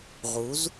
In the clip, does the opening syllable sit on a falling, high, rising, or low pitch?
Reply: rising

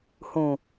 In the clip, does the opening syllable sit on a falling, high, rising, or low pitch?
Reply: low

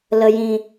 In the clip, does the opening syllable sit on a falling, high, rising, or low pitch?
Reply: low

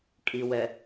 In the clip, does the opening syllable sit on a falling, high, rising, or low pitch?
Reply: low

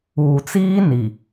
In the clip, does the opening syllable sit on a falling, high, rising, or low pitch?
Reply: low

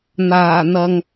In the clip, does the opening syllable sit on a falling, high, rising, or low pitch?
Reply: low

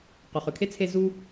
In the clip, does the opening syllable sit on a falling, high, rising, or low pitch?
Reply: low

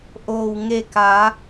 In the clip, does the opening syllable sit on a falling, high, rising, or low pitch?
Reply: low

